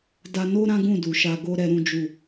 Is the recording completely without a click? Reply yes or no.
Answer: yes